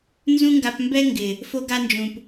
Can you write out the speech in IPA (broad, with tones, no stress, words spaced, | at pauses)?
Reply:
nzũ˦ŋɡa˧pmbɛ˦ ŋɡɪ˨ | fo˦ɡa˦nd͡ʒũ˨p